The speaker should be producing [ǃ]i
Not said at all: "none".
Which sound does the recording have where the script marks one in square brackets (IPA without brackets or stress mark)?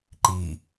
ǃ